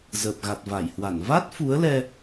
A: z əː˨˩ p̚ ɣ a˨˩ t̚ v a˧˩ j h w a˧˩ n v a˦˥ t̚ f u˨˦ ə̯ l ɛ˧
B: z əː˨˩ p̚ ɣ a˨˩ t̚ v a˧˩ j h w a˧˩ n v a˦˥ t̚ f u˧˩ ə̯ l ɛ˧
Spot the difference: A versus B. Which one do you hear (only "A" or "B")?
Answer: A